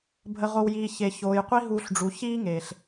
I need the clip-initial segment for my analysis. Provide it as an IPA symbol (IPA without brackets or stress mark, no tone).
bʱ